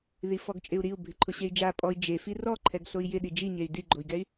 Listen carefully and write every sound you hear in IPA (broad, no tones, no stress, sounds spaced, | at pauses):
ð i f ɔ ɡ t͡ʃʼ ɪ u̯ ɾ i u̯ bʱ ɪ ǃʰ ʊ ɕ e i̯ d͡ʒ a pʼ ɔ i̯ d͡ʒ e f i r ɔ ǃʰ ɛ ɡ ɬ o i̯ j ɪ ɗ i d͡ʒ i ɲ e y̯ d i ɡ͡ǃ o i̯ ɡ ɛ y̯